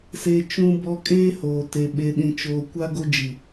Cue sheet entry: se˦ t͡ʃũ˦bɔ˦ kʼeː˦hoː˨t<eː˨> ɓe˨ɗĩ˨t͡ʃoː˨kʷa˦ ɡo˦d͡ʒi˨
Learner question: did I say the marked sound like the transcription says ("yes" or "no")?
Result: no